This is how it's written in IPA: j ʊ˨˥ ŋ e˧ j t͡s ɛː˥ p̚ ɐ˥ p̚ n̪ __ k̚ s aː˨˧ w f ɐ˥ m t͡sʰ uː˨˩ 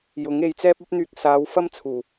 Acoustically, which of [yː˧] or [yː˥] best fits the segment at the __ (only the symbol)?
yː˧